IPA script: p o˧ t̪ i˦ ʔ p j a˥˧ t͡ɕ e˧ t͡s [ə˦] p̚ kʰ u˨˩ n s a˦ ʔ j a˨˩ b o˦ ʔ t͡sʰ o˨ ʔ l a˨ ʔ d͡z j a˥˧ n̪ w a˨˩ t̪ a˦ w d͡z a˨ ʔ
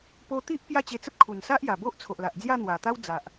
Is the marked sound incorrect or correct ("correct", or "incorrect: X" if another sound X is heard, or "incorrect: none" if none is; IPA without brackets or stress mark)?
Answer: correct